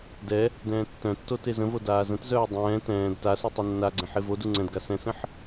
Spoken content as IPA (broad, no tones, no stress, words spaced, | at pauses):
dɛ | dɛ̃ːtːœ̃tːo tezə̃vo daːzə̃tzœː dˤɛ̃ː tɛ̃ːd tasu tˤɤnːaɡ͡ǀɛ̃ħ evodu ŋ͡ǀɛ̃dɡa sɛ̃sə̃ħ